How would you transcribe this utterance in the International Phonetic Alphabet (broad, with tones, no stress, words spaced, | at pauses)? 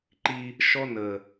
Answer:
ǃi˧ | ʃɔ˥ nə˨˩